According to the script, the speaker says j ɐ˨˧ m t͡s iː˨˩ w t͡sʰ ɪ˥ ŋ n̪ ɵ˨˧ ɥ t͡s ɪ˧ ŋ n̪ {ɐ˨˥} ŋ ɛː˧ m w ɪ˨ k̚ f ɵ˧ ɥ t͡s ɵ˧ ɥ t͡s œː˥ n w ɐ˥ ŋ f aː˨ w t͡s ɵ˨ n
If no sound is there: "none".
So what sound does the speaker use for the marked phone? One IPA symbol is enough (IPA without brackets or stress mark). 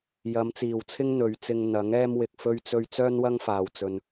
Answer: ɐ˨˥